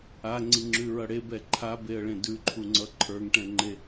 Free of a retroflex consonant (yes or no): no